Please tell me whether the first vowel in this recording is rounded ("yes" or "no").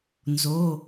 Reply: yes